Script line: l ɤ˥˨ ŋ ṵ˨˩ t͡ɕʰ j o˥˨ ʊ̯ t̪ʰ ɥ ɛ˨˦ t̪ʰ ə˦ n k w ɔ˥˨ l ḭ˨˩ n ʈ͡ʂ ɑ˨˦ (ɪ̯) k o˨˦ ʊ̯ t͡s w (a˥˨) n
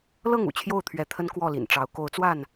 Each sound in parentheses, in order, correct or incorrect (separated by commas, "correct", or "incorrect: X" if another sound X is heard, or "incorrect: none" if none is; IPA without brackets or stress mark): incorrect: ʊ̯, correct